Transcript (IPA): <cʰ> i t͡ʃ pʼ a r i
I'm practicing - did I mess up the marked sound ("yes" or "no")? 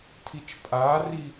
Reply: yes